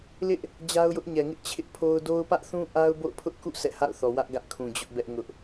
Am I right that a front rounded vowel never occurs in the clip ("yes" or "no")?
yes